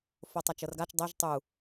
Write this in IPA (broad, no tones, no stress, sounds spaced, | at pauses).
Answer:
f o tˤ a t͡ʃ ɤ r ɡ a t͡ʃ dˤ ɛ ʒ tˤ u